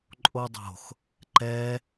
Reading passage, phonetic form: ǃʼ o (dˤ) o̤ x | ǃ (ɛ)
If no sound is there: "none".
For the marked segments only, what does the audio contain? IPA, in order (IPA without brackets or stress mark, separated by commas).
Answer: dˤ, ɛ